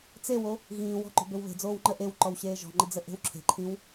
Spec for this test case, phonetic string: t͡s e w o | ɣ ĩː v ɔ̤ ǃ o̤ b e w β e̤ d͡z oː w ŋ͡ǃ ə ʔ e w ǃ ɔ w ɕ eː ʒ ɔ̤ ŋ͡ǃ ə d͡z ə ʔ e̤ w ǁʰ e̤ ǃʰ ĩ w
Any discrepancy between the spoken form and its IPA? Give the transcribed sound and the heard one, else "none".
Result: v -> w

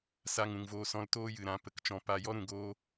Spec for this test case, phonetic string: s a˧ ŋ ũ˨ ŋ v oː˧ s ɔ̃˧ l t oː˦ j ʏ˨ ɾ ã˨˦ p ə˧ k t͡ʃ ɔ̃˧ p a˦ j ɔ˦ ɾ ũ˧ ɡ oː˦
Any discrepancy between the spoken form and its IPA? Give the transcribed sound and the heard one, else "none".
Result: ʏ˨ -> ɨ˨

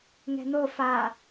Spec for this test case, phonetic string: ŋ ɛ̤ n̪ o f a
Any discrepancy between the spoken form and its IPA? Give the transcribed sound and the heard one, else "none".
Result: none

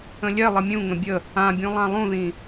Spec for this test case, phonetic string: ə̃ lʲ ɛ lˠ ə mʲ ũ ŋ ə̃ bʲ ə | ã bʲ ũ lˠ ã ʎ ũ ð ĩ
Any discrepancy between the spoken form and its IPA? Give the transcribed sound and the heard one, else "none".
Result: ʎ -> lˠ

